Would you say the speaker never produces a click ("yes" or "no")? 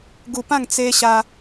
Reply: yes